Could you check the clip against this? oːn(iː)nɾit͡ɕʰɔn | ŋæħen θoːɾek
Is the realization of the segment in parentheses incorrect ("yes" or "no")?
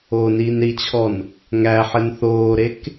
no